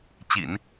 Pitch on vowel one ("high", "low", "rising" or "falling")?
low